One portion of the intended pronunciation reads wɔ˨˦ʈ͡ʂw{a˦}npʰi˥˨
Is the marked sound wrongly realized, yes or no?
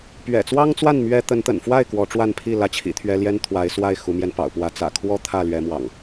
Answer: yes